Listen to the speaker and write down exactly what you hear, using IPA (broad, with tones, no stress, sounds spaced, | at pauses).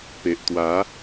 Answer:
p e˨ ʔ t̪ w a˨˦